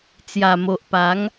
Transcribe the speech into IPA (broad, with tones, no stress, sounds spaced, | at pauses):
t͡s j a˨˩ m o˨ ʔ p a˨˦ ŋ